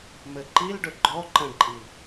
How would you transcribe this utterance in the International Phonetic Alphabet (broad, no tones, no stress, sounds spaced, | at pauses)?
m ɘ ǃ i l ɖ ɵ ɡ͡ǃ ɔ ǃ ə̃ ɖ ǃʼ i